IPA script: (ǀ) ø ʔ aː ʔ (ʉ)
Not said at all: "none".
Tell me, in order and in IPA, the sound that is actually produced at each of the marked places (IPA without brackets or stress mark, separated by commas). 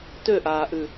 t, ʉ